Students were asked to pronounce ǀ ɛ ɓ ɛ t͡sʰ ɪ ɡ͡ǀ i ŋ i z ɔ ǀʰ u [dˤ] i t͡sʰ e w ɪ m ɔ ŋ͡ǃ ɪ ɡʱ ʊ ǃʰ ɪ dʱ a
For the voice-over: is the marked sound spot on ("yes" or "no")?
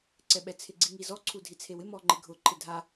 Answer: no